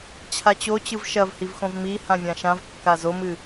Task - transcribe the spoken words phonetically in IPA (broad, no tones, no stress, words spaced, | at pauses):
t͡ɕʰat͡ɕo t͡ɕɯvʃɐvhivxõv mi hãvʲãʃãv kːazomɨ